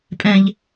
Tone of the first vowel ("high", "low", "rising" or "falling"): high